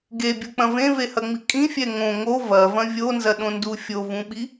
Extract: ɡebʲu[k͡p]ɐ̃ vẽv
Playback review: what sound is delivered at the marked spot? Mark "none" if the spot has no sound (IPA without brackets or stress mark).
k͡p